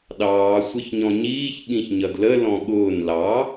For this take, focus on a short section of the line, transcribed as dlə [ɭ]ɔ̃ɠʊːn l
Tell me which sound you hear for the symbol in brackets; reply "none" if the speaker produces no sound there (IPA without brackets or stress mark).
l